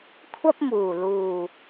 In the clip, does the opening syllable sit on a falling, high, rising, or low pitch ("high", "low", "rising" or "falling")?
high